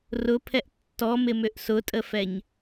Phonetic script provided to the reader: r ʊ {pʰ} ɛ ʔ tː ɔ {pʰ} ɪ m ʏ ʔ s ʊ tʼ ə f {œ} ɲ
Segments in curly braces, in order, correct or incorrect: correct, incorrect: m, incorrect: ɛ

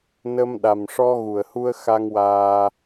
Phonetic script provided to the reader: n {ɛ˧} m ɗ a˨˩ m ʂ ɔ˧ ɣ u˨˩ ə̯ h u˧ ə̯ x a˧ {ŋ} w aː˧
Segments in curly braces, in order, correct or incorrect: incorrect: ə˧, correct

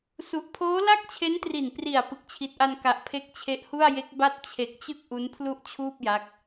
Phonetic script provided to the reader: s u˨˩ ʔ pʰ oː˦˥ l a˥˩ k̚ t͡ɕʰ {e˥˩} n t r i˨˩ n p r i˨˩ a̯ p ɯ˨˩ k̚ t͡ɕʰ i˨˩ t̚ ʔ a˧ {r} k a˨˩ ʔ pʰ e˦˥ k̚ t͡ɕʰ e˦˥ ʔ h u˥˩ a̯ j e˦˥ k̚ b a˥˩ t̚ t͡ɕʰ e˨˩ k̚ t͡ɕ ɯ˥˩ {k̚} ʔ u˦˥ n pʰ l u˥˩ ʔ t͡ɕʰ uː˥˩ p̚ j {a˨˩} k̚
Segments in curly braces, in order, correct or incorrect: incorrect: e˦˥, incorrect: n, correct, incorrect: a˦˥

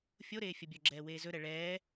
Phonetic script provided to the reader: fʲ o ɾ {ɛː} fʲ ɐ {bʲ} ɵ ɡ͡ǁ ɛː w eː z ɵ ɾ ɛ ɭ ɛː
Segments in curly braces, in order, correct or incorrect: incorrect: eː, correct

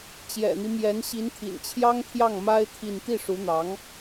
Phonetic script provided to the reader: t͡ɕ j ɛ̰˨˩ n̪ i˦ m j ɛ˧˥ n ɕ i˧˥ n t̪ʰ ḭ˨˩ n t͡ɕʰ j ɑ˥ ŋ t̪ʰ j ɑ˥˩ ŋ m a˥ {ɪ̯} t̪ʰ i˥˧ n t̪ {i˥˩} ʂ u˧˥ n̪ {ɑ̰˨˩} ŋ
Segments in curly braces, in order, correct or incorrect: correct, correct, incorrect: ɑ˧˥

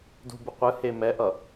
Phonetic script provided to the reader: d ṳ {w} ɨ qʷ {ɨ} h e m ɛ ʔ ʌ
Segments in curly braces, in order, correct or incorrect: incorrect: b, correct

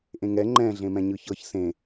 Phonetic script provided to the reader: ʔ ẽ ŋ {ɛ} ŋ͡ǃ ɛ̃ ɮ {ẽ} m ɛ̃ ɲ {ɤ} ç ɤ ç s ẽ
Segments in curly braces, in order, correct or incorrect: correct, correct, incorrect: ɯ

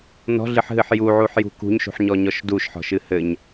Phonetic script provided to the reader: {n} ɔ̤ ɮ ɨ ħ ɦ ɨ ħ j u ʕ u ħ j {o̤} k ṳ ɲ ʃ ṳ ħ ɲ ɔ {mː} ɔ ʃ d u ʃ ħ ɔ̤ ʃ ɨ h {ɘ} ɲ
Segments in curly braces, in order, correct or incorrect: correct, incorrect: ṳ, incorrect: ɲ, correct

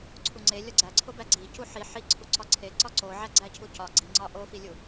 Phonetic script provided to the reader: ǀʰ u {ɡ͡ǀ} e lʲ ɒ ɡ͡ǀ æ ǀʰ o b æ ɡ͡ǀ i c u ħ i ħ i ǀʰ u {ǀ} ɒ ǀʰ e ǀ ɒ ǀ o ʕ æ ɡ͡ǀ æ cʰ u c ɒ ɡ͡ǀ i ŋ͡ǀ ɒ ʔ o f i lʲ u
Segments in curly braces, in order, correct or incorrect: incorrect: ŋ͡ǀ, correct

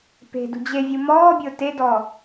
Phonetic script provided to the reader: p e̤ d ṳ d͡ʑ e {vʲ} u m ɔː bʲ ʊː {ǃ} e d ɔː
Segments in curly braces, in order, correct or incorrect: correct, incorrect: t

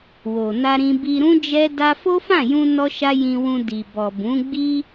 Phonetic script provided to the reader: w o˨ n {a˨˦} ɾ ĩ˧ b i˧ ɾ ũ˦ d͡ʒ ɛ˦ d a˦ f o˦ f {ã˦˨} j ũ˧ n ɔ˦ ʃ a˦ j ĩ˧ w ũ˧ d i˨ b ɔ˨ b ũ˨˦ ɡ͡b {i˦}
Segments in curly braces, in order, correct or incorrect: incorrect: a˧, correct, correct

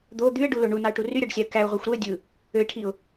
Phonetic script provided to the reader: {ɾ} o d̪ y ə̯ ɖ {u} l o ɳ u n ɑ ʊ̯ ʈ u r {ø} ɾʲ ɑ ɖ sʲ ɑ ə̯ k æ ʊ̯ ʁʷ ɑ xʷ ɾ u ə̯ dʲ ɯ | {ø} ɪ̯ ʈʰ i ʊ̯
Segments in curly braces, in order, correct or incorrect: incorrect: d̪, correct, incorrect: y, correct

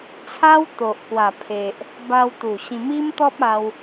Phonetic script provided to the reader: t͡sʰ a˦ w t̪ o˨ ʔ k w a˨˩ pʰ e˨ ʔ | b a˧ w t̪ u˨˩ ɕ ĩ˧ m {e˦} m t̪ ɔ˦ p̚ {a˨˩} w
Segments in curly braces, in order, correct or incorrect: incorrect: i˦, incorrect: a˧

